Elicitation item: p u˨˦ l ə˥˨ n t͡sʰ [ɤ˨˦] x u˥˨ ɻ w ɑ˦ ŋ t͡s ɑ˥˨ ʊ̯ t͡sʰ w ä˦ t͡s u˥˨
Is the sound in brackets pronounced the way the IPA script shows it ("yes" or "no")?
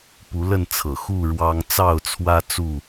no